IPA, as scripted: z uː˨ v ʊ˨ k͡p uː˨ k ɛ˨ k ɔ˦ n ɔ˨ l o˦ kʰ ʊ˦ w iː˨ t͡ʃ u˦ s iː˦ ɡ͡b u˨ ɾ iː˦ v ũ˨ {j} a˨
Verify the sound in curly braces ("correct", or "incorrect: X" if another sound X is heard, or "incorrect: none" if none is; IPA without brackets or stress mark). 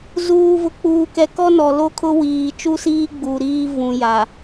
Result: correct